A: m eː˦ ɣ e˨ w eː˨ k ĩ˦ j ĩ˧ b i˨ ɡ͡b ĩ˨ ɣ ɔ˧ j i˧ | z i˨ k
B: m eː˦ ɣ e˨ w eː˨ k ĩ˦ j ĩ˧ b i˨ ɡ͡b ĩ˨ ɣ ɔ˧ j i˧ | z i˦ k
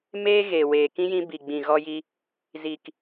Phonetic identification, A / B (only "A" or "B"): A